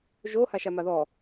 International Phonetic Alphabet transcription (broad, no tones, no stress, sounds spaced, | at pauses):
ʒ o h a ʃ a m a ð ɔ